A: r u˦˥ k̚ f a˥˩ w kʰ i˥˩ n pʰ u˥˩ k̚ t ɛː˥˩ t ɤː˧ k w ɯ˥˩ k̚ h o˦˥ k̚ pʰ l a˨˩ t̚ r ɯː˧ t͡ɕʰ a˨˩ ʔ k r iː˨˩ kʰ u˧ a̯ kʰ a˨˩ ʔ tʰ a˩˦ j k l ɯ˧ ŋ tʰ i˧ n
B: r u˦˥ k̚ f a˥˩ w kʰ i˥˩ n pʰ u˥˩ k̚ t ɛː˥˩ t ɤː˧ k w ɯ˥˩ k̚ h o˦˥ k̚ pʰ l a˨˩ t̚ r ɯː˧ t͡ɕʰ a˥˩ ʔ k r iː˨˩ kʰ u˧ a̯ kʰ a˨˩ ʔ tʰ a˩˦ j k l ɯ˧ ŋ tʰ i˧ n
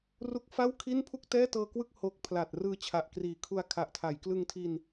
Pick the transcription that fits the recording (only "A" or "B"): A